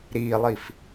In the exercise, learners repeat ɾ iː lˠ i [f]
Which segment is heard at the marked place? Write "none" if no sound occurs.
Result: f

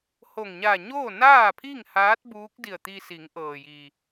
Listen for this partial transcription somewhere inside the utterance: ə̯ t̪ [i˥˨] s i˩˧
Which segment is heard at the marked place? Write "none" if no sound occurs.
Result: i˧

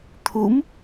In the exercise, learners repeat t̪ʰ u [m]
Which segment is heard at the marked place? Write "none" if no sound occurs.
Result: m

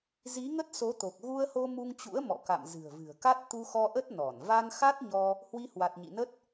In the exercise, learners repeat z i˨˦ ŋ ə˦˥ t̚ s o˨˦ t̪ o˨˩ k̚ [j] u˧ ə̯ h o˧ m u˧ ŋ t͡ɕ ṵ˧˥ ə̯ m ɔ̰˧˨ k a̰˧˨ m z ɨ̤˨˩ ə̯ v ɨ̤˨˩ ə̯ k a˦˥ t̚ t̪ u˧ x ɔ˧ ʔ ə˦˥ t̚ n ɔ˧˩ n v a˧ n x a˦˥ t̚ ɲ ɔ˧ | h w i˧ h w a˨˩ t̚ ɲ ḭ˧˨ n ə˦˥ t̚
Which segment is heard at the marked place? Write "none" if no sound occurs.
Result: ɣ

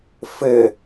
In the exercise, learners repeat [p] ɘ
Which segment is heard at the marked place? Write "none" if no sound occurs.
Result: f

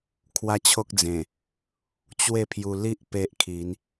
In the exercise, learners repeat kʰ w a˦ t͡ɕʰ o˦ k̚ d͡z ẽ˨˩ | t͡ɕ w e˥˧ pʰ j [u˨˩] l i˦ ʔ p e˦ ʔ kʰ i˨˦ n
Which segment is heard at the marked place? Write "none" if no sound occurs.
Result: u˧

